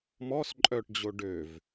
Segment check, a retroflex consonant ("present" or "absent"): present